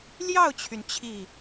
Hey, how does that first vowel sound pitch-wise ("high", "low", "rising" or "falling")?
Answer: falling